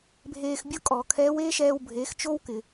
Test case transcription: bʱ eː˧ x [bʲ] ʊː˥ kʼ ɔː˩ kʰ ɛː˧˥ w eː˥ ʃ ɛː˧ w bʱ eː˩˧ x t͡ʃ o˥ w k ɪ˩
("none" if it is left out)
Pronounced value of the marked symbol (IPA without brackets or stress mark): bʲ